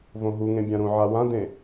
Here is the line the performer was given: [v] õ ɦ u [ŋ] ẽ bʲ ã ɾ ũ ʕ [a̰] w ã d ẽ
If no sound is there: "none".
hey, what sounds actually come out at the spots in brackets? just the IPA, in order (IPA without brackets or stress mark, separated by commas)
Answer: v, ŋ, a